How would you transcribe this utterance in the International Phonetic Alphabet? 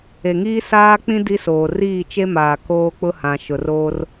e˨ŋiː˦ saː˦ k͡pĩ˦ di˦soː˨ riː˦˨t͡ʃe˦maː˨ koː˦k͡pʊ˦hã˨ ʃʊ˨roː˦r

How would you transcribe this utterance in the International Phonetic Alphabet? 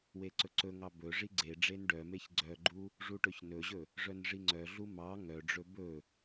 weǀɵǀɵŋɑ bɵ ʐiɡ͡ǀeɖ͡ʐen ɖœmeç ɡ͡ǀœɡ͡ǃu | ʐuʈɵçnɵʑɵ | ʐœnʐiŋ͡ǀœɮu mɑ ŋœɖ͡ʐɵ bɵ

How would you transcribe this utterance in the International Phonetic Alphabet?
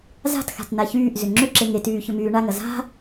za̤txa̤t naçyːʔzʏ ŋ͡ǁʏǁeŋ etyː çʏmyːɳaŋɐ za̤

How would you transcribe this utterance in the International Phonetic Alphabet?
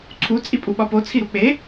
ǀʰu t͡sʼipʼuɓɒpo t͡sʰiɾuk͡pe

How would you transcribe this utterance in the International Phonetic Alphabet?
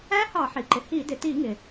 æ˦˥hɑ˧˩˧ħi˩ǃɪ˩ hi˧˩˧dɪ˩ti˧˩˧ ŋɪ˩

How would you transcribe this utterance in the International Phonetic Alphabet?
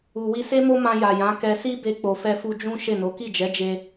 u˨wi˧se˦mo˦ mã˧ja˨ jã˨˦ kɛ˧si˦ be˧k͡po˨fɛ˧fu˧ d͡ʒũ˦ ʃe˦˨no˨˦ ki˦˨d͡ʒɛ˨˦d͡ʒe˧

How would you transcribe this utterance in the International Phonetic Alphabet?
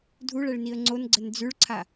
dʱuɭɛɭniə̯ ŋ͡ǀonɡ͡ǀən d͡zʉɭǀʰa

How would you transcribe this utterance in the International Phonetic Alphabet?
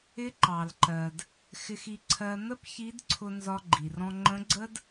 ɪ˧˥ǃɑ˩lǃɜ˩d | xɪ˧xi˧ǀʰɜ˧ n̪ə˥pçi˧˥dǀʰʊ˧ nzɒ˧ɡ͡ǃi˩rɔ̃˧ ŋ͡ǃə̃˧˥ɡ͡ǀə˥d

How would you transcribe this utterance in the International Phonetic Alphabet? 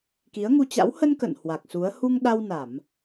ki˨˦ə̯ŋu˧t͡ɕa̰˧˥w hə˧n kə̰˧˨n hwa˨˩k̚su˨˦ə̯ hu˧ŋɗa˧w na˧˩˨m

